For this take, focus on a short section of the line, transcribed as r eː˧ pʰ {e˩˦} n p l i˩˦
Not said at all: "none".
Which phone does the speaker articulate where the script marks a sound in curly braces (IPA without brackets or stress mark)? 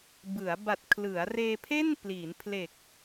e˥˩